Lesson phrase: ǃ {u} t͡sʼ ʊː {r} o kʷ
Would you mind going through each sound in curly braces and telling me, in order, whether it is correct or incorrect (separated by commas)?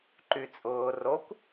incorrect, correct